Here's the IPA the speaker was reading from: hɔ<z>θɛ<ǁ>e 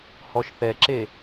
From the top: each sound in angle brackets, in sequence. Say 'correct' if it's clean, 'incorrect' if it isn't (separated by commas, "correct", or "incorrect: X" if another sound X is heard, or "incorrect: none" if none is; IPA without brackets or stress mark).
incorrect: ʃ, correct